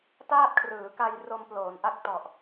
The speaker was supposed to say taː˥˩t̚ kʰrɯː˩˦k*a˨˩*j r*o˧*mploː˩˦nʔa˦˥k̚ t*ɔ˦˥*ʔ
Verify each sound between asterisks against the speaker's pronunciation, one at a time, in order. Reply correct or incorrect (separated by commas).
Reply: incorrect, correct, incorrect